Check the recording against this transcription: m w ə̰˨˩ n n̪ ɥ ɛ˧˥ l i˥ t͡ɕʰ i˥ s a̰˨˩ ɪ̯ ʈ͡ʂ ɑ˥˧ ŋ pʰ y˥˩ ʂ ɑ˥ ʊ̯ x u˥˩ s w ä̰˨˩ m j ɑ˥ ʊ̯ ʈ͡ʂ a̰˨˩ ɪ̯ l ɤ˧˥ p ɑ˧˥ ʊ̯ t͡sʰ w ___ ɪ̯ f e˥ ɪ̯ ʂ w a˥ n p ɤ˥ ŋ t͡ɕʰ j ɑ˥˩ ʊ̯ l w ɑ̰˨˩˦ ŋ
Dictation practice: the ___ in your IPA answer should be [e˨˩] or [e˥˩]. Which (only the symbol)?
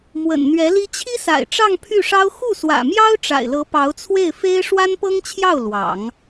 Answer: e˥˩